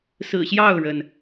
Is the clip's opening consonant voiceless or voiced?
voiceless